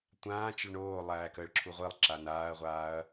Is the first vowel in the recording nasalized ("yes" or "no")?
yes